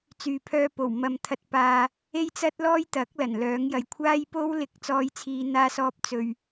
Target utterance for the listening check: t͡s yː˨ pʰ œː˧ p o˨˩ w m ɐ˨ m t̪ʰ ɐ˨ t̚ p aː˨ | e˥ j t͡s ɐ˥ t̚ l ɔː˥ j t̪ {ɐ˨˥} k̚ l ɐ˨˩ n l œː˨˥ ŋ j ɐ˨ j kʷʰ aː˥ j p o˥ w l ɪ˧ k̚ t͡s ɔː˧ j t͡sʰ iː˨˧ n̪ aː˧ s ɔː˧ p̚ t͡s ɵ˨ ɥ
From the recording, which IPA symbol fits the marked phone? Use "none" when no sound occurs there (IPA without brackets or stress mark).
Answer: ɐ˨˥